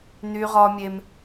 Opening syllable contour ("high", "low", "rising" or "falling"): high